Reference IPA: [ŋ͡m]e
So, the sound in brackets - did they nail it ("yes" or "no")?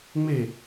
yes